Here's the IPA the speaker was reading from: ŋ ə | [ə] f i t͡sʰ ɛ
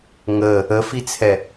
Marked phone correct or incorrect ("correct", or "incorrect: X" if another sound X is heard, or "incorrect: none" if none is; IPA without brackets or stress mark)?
correct